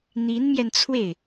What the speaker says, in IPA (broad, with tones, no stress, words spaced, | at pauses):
n̪i˧˥nmjɛ˧nt͡sʰwe˥˩ɪ̯